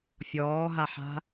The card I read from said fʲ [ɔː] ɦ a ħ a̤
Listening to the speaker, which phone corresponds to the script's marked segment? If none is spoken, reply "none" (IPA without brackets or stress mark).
ɔː